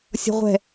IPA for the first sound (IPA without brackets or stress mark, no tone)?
sʲ